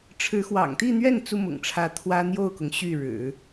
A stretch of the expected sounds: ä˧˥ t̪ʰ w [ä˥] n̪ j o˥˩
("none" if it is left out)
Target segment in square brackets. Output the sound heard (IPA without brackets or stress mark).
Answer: ä˥